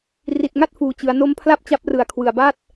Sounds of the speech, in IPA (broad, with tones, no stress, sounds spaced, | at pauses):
r i˨˩ t̚ ŋ a˥˩ t̚ f uː˨˩ t͡ɕ ɯ˩˦ a̯ n o˦˥ m pʰ l a˥˩ p̚ t͡ɕ a˦˥ p̚ r ɯ˨˩ a̯ kʰ w ɯ˨˩ a̯ b a˥˩ t̚